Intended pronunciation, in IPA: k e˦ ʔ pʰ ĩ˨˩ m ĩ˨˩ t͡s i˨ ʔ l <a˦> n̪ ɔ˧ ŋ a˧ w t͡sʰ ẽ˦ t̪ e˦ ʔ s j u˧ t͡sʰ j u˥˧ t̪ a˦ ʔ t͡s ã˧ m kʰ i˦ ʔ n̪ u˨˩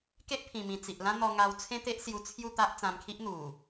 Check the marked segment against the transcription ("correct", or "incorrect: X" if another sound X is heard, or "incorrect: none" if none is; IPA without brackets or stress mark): incorrect: ã˦